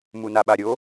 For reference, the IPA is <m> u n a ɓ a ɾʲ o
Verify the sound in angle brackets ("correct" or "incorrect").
correct